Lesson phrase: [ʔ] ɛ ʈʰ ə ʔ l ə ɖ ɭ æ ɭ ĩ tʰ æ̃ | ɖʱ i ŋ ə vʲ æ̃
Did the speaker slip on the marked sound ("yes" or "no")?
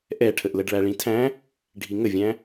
no